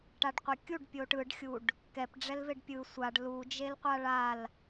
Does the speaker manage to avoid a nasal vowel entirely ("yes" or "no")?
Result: yes